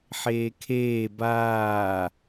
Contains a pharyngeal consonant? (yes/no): yes